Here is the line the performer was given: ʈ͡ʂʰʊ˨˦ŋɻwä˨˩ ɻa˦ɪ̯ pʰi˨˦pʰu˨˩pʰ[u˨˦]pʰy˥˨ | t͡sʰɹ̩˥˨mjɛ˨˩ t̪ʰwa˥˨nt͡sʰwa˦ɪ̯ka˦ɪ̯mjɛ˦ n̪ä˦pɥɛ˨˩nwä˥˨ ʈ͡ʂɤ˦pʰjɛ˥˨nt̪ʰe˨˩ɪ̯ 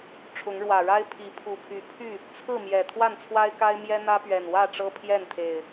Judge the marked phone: incorrect: y˨˦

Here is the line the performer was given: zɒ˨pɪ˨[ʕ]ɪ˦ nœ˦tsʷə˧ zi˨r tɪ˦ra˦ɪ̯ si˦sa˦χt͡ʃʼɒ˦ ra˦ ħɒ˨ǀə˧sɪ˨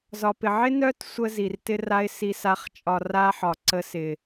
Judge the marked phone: correct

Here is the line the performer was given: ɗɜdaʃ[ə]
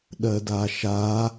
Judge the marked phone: incorrect: a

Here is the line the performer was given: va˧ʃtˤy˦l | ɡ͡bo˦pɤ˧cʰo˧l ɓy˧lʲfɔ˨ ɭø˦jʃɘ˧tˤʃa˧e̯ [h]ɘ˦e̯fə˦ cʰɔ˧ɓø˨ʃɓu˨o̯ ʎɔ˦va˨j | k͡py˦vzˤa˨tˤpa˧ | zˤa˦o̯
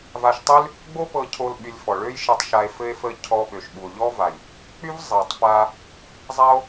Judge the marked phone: incorrect: f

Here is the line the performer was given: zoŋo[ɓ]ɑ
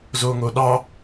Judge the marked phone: incorrect: ɗ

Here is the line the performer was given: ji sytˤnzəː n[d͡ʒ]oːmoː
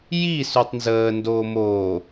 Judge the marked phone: incorrect: d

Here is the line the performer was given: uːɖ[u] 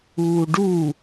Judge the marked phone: correct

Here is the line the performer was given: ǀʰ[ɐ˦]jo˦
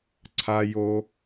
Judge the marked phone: incorrect: a˦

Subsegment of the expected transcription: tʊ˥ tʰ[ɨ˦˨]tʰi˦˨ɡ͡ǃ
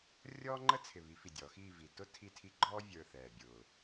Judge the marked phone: incorrect: i˦˨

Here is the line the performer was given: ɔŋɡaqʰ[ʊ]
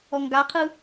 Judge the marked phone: incorrect: ɯ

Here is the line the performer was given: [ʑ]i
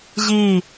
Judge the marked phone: correct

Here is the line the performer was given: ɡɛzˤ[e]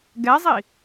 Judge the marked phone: incorrect: i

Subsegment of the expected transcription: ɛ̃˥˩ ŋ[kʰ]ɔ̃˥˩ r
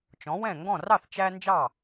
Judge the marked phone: incorrect: ɡ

